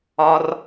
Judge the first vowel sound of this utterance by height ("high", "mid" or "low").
low